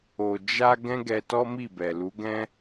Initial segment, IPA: o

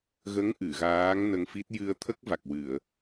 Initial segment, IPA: ɣ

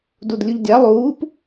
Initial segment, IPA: d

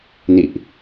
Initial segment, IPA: n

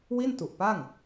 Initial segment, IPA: w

